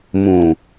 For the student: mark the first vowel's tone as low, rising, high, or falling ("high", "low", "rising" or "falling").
low